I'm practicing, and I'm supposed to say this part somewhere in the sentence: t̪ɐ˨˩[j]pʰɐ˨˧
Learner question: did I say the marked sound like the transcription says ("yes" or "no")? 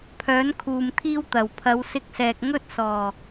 no